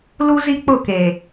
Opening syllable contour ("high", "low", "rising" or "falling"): high